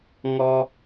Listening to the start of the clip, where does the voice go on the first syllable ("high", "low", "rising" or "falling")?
high